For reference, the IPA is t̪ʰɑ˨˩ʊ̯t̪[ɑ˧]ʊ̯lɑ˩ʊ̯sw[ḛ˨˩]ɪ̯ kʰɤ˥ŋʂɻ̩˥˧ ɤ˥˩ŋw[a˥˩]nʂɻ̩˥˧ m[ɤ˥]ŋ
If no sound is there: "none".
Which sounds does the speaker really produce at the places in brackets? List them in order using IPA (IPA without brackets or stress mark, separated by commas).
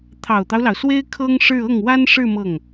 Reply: ɑ˦, e˥, a˥, ɤ˥˩